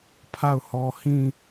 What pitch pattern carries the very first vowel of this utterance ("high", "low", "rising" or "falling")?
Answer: falling